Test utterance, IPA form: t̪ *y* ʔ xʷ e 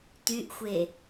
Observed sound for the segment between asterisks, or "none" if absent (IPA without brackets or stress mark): y